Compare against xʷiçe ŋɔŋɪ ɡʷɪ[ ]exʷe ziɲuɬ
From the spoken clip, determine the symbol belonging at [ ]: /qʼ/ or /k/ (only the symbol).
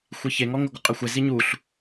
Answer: qʼ